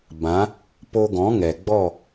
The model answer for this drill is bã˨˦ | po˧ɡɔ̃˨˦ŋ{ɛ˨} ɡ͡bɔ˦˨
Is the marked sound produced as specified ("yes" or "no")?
yes